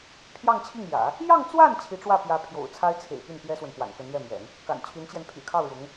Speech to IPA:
pʰ j ɑ˥˧ ŋ t͡ɕʰ i˥˩ ŋ j ä̰˨˩˦ | j ɑ˥˧ ŋ t͡s w a˥˩ n t͡ɕʰ i˧˥ ʈ͡ʂ w ä˥˩ p j ä˧˥ pʰ j o̰˨˩ ʊ̯ t͡sʰ a˥ ɪ̯ t͡sʰ ḛ˨˩ ɪ̯ p y˥˩ n p j ɛ˥ s w ə˨ n p w a̰˨˩ n k ə˧˥ n ɥ ɛ˥˩ m j ɛ̰˨˩˦ n | k a̰˨˩ n t͡ɕʰ y˧˥ n t͡ɕ j ɛ˧ n pʰ y̰˨˩ kʰ ɑ˥˩ ʊ̯ ɻ ʊ˧˥ ŋ

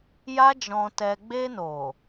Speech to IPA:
j a˦ d͡ʒ ɔ̃˧ t ɛ˧ ɡ͡b e˧ n o˨

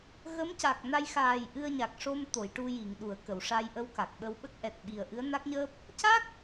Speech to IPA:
ɣ ə˧˥ m c a˨˩ k̚ n a˧ j x aː˨˩ j ʔ ɨ˧ ə̯ ɲ a˨˩ k̚ ʂ o˧ m t̪ o˨˩˨ j ʈ u˧ j i˨˩˨ ŋ ɗ u˨˩˨ ə̯ k ə˨˩˨ w ʂ a˧ j ʔ ə˧ w k a˨˩ k̚ ɓ ə˧ w ɓ ə˦˥ k̚ ʔ ɛ˨˩ t̚ ɓ i˨˩ ə̯ ʔ ɨ˧˥ ə̯ n a˦˥ k̚ ɲ əː˦˥ p̚ | c a˦˥ k̚

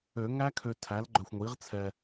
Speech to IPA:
ø˨˩˦ ŋ æ˦˥ kʰ ø˨ tʰ æ˩˥ l ɡ͡ǃ œ˨ xʷ ŋʷ i˩˥ ʁ t͡sʰ ɛ˨

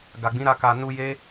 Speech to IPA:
ɡ a˨ ɡ͡b ĩ˨˦ ɾ a˧ k a˨ n u˧ j e˦

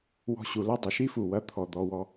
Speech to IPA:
w ɔ̤˧ ɕ u˨ l ɐ˦ dˤ ə˨ ʃ i˦ f u˨ w ɐ˧ t̪ʰ ɔ˨ d̪ ɔ˧ w ɔ˧

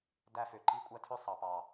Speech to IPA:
d æ˧ f ø˨ ǃ i˧ kʷʼ æ˦ tʰ ø˦ sˤ ɑ˨ p ɑ˨

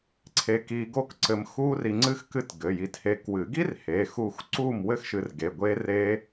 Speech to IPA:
ǀʰ e˧ k iː˧ ɡ o˥ k ǀ ɘ˧ m x uː˥ r i˧ ŋ͡ǀ ɨ˥ x k ɨ˥˨ t ɡ ɘ˩˧˩ j i˧ t h e˧ k w ɨ˨˩˦ ɡ i˥ r h e˩˧˩ x u˥˨ x ǀ uː˥˨ m w ɘ˥ x ʃ ɨ˧ r ɡ e˩˧˩ ɡʷ eː˥ r eː˥

